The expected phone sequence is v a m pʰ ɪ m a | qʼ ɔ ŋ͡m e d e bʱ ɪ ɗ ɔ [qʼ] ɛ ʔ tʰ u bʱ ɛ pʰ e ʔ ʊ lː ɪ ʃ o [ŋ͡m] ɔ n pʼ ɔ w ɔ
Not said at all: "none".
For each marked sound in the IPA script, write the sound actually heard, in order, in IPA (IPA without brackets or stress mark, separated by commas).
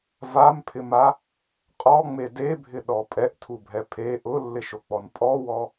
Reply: pʼ, k͡p